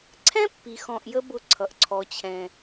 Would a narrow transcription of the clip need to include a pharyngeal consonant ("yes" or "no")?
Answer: no